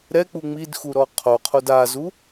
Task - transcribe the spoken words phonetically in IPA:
ɾ ɛ k͡p u ŋ͡m i d x u ɾ ɔ qʰ o qʰ o d a z u

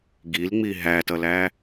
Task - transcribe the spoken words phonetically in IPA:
ɡ i l ŋ͡m i ɦ æ t ʌ l æ

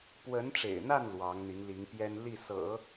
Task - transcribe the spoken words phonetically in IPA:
p w ə˧˥ n ʈ͡ʂ ḛ˨˩ ɪ̯ n̪ a˥˩ n l w ɑ˧˥ ŋ n̪ i˧˥ ŋ l i˧˥ ŋ p j ɛ˥ n l i˥˩ s ɤ̰˨˩˦

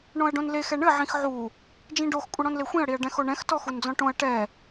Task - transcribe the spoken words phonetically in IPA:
ɳ õ ɐ̯ ɖ õ n l e x ɛ ɳ ɘ ʕ ĩ x ʕ u | d͡ʒ ĩ ɖ o x kʷʼ ɘ ɽ ɔ̃ n l e xʷ ĩ ɐ̯ ɽ i ɐ̯ ɖ ɛ̃ x o ɳ ɛ̃ x t ɔ x u n d͡z ɔ̃ ʈ õ ɐ̯ ʈ ɛ

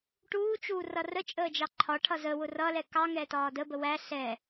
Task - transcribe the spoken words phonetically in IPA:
ʈ uː t͡ʃ uː r ʌ r ə t͡ʃʼ əː d͡ʒ ɑ ǃʰ ɒ ʈʰ ʌ z ə w ʊ r ʌ l ɛ k ɑ ŋ ɛː t ɒː d ə b ə w æ ɬ ɛ

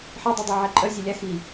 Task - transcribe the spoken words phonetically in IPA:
ħ e dˤ ɛ dˤ ɛ ʕ ɛ ǃʼ œ zʲ ɛ lʲ a x i

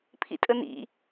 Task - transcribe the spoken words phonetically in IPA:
pʰ ḭ tʼ ə n ḭ

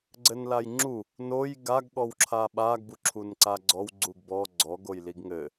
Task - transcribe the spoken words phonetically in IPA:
ɡ͡ǀ ɘ n l a j ŋ͡ǁ u | n o j ɡ a ɡ ɠ ɔ w ǁʰ a ɓ a ɡ b u ǁʰ u n ǀ a ɡ͡ǀ ɔ w ɡ͡ǀ u ɡ b ɔ ɡ͡ǀ ɔ ɡ o j l i ɡ ŋ ɘ

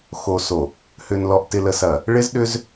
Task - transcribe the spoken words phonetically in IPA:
x o˨ s o˨ | h ʏ˨ n l ɔ˨ ʔ t ɪ˨ l ə˨ s ɐ˨ | ɭ ɪ˦ z ɗ ʏ˦ z

